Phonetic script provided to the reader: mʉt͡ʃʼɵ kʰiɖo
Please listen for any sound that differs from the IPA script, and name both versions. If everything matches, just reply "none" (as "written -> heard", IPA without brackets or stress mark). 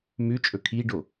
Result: none